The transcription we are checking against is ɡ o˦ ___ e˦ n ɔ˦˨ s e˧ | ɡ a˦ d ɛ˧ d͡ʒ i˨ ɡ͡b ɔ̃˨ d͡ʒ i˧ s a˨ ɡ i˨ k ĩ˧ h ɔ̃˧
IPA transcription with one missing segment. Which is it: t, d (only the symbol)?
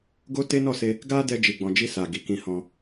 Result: t